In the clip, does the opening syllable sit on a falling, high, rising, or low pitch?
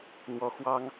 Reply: rising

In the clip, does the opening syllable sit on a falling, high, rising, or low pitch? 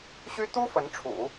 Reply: high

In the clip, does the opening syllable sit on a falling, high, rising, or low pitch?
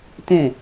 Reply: falling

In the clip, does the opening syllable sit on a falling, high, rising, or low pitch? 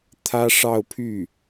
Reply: high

